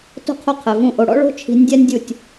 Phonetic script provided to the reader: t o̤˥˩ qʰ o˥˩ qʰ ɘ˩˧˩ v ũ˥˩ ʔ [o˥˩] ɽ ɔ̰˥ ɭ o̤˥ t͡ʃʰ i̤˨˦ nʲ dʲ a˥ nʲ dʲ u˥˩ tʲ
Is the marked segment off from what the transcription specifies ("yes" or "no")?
yes